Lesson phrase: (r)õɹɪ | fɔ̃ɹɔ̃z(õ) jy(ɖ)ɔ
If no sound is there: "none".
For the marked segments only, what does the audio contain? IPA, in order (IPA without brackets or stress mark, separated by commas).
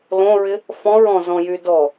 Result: l, ɔ̃, d